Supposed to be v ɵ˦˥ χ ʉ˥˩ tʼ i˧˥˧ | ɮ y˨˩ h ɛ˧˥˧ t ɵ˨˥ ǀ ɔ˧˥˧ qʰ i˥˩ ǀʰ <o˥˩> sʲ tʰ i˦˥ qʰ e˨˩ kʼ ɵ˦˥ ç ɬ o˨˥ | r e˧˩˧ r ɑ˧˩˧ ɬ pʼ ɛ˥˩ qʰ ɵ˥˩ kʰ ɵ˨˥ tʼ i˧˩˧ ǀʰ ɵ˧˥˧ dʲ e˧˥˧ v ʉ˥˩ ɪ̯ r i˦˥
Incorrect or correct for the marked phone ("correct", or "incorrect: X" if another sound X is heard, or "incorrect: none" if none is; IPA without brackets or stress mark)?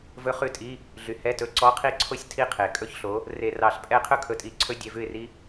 correct